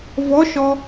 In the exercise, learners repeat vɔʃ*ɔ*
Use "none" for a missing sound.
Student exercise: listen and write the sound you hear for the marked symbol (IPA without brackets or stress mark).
ɔ